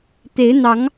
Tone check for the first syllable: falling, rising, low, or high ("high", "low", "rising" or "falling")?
rising